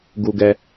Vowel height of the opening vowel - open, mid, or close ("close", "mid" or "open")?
close